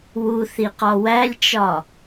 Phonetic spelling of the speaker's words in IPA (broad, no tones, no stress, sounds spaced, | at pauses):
w u θ i q ɒ w æ lʲ t͡ʃ ɒ